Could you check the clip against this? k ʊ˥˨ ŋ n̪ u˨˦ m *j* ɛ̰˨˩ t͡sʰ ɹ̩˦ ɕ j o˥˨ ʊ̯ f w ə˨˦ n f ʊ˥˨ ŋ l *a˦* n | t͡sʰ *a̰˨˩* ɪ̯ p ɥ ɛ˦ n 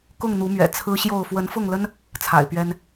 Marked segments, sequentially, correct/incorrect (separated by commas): incorrect, incorrect, correct